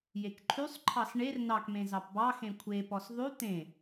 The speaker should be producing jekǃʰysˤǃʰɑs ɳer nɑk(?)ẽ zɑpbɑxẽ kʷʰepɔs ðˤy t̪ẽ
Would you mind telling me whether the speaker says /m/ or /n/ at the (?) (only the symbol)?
m